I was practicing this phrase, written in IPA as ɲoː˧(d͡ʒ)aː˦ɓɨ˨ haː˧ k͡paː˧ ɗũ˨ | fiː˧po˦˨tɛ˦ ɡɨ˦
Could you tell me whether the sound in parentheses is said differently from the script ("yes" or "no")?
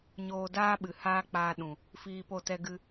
yes